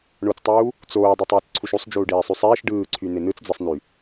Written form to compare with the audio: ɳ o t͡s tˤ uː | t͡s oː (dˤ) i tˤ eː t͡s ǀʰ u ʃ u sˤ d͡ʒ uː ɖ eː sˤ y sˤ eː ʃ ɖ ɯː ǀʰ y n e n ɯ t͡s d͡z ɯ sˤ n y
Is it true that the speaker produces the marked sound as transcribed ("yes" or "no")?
yes